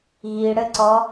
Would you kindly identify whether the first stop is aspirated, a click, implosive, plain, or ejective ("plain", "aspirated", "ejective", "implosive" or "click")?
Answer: click